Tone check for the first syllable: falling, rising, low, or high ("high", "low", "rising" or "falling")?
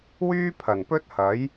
high